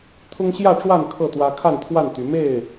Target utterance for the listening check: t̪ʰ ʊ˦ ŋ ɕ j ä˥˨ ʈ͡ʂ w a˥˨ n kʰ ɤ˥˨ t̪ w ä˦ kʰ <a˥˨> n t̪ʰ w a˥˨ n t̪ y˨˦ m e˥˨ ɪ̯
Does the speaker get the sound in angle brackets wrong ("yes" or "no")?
no